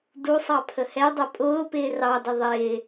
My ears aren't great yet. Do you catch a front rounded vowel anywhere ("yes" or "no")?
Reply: no